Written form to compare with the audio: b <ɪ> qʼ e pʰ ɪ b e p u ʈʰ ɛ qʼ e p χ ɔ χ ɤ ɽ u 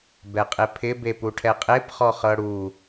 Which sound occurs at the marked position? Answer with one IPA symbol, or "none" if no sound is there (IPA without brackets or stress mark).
ɛ